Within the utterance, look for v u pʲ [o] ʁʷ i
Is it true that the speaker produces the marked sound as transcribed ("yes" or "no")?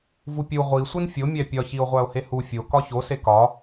no